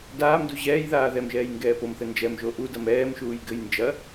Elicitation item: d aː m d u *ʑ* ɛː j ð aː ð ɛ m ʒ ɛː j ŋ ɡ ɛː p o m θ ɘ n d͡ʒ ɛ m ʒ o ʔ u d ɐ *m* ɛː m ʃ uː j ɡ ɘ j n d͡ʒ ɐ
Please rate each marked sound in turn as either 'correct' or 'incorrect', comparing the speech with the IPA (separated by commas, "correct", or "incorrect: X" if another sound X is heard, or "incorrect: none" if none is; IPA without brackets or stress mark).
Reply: correct, correct